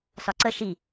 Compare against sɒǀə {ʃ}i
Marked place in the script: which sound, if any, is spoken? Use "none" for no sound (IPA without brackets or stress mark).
ʃ